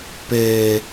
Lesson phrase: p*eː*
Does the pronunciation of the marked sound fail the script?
no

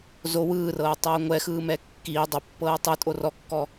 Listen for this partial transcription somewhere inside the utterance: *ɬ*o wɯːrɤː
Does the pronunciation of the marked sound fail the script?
yes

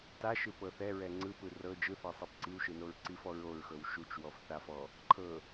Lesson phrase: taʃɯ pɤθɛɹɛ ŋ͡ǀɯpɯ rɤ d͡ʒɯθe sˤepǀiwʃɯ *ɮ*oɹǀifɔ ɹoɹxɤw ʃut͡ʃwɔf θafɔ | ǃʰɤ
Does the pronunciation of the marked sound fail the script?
yes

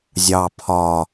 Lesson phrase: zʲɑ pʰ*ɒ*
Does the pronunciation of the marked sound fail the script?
no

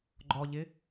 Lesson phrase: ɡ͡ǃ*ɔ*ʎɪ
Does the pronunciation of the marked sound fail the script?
no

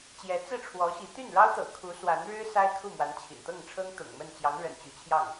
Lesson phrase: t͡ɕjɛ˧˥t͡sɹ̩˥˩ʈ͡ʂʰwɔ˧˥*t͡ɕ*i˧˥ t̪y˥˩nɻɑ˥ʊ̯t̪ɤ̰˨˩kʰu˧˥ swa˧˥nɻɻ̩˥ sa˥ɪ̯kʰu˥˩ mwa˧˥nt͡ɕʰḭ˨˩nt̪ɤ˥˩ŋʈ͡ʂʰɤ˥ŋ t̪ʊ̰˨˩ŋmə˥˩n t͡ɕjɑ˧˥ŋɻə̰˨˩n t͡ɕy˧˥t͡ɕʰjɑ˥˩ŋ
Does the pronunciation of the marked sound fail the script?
yes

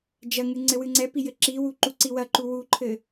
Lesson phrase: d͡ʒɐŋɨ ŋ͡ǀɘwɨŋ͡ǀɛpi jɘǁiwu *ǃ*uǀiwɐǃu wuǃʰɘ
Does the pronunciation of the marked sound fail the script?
no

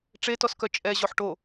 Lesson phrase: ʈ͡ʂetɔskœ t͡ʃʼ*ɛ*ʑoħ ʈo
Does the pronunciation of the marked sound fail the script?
no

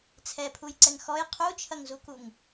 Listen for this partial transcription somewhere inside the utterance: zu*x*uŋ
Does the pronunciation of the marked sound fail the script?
yes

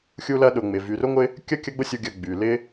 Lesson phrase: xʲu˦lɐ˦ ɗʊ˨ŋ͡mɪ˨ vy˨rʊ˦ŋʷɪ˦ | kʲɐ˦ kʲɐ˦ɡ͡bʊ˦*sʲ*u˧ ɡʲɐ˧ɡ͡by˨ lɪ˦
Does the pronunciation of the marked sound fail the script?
no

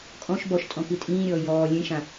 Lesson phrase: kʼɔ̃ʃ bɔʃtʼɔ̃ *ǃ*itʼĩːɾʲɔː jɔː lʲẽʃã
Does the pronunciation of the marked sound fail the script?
yes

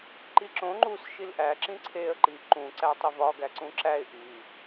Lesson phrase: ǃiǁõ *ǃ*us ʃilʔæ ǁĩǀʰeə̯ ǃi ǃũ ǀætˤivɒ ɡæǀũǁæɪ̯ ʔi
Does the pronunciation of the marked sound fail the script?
yes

